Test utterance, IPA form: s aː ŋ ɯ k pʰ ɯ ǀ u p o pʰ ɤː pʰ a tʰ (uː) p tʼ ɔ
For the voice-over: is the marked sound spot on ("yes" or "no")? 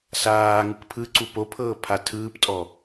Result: no